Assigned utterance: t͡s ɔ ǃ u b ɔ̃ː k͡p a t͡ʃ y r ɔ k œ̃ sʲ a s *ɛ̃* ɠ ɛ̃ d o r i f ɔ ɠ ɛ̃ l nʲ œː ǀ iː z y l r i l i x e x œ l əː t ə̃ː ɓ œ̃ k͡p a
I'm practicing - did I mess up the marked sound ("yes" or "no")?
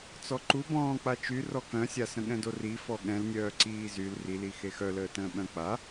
yes